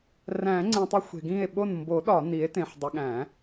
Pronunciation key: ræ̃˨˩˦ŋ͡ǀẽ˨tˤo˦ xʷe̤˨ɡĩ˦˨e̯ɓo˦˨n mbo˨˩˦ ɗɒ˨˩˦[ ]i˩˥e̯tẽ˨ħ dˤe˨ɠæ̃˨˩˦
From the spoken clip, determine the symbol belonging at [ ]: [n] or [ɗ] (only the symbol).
n